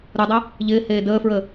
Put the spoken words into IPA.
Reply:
ɾ u dˤ ə | ʎ ɪː h eː d əː f ɹ ə

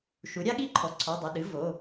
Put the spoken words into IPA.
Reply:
ʃ u˩˥ ɾʲ a˥ ɠ i˥ ǃʰ ɔ˩˧˩ ǀʰ ɔ˩˧˩ dˤ ɐ˩˧˩ ɗ ɨ˩˥ v o˩˧˩

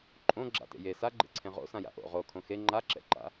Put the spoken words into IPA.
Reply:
ǃʼ õ ɡ͡ǁ a̰ t ḛ j e s a ɡ͡ǃ ḛ ǀʰ ẽ ʁ o̰ s ã j a̰ ʔ o̰ ʁ o kʰ õ x e ŋ͡ǃ a ǁ ɛ̰ ǃ a̰

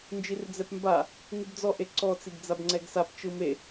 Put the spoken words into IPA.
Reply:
n d͡ʒ i r d͡z ɛ p m b a | ŋ ɯ b d͡z ɔ ʔ e ǀ ɔ t͡s i ɡ d͡z a b ŋ͡ǀ ɛ ɡ s a p t͡ʃ ɯ m e

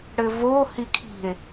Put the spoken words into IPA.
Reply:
ɽ ɘː v oː h i kʰ i̤ e̯

